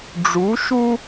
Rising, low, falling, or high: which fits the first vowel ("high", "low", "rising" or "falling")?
rising